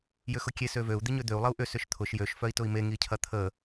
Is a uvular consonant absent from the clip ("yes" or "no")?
yes